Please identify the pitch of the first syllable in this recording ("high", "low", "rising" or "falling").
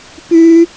high